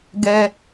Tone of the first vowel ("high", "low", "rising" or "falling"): high